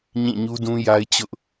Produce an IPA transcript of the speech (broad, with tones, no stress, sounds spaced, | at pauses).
ɲ ĩ˦˨ ɲ u˦ d ũ˦ j a˦ ɪ̯ t͡ɕ ʊ˦ ʔ